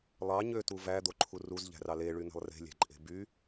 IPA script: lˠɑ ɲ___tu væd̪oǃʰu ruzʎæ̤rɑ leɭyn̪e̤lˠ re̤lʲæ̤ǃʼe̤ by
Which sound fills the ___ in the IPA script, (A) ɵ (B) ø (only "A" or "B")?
B